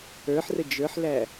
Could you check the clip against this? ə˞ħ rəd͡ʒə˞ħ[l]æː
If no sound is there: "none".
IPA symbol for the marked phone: l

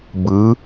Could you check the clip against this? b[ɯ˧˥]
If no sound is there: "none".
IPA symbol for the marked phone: ɯ˧˥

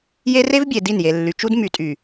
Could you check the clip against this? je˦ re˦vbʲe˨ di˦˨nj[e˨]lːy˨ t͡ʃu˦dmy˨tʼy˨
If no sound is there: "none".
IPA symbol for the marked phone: e˨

